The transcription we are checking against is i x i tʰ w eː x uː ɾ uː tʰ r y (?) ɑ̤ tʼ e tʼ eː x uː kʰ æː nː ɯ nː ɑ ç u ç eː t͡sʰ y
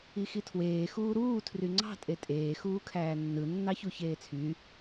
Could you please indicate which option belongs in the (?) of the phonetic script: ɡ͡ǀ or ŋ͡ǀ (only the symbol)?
ŋ͡ǀ